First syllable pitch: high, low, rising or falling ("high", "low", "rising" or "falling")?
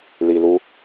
low